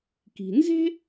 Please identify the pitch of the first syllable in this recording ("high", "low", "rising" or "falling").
low